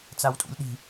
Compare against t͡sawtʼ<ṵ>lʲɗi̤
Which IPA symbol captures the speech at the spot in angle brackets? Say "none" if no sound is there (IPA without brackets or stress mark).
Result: ṵ